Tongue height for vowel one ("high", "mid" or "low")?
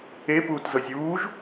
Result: mid